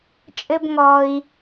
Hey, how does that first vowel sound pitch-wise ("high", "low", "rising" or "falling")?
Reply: high